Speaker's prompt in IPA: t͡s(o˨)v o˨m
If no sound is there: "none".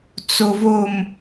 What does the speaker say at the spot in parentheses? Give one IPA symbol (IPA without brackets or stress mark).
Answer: o˨